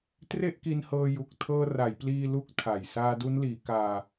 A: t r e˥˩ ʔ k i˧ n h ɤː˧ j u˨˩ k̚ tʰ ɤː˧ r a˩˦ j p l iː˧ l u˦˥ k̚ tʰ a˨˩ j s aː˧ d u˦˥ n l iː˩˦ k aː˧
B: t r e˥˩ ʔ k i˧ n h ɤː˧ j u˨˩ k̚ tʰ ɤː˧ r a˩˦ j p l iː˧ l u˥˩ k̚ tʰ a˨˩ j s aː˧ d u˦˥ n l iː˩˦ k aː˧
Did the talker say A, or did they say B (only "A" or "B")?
A